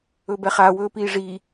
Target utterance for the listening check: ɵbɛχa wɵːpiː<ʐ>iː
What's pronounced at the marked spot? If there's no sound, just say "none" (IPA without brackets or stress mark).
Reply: ʐ